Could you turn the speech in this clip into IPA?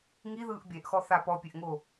ŋiðɯːʔ bʲɛʔxɔθa pɔpʲeʔŋo

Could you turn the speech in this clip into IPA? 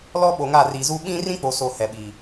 lɔ˦ ɓo˨ŋa˦˨ riː˨zu˦ ɓĩ˦rĩ˦k͡po˨so˨ hɛ˨ɓiː˨

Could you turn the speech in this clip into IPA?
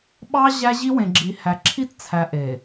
ɓɑ˦ ʑæ˦ʑi˦ wẽ˨ɡ͡ǁi˨hæ˨ ǁʰi˦tt͡sʰæ˨ ʔe˨

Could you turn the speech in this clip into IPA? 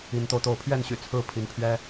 i˨˦nt̪o˧ʊ̯t̪o˥˨ʊ̯ pʰɥɛ˥˨nɕy̰˨˩ t͡sʰɹ̩˥˨pʰi˨˦npʰɥɛ˦

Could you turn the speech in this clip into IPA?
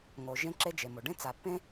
ŋo˩ ʒẽ˥ǁe˥d͡ʒe˩mo˩ ɖẽ˥t͡sa˩pːẽ˥

